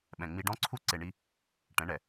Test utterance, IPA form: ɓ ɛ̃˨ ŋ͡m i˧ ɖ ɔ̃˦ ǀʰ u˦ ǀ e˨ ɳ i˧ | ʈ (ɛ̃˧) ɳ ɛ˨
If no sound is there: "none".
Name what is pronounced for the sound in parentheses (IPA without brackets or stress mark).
ɛ̃˨˦